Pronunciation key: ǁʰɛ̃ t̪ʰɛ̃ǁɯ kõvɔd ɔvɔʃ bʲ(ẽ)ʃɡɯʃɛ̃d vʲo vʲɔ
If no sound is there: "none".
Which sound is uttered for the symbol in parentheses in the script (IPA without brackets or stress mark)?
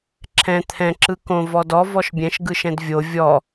ɛ̃